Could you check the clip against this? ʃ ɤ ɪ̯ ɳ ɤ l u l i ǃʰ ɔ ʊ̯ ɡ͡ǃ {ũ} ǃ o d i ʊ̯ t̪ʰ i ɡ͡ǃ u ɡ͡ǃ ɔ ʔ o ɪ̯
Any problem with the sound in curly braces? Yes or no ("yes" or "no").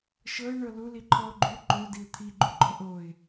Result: yes